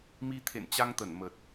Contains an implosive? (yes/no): no